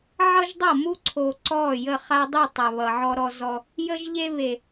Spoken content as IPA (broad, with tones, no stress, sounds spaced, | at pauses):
ʕ ʌ˦ ʒ dˤ ʌ˦˨ m u˦ ǀʰ o˨ ǀ ɔ˦˨ j ə˦˨ χ a˦ dˤ u˦˨ tˤ a˨ β ʌ˨ ʕ ɔ˦ ɾ ɔ˦ z ɔ˦ | j ə˦ ʒ ʎ e˦ β e˨